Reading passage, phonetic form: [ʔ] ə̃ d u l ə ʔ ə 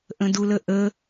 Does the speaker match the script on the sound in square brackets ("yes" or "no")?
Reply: yes